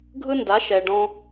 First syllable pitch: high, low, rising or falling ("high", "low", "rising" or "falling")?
high